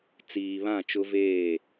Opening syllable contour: low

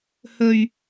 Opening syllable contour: low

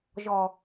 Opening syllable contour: low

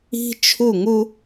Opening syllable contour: high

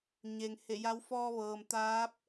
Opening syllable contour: low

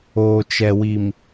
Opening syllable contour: low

